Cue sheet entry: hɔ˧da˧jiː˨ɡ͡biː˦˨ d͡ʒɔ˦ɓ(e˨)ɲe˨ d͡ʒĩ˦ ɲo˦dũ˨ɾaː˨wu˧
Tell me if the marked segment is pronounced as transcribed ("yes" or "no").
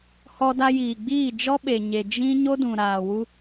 yes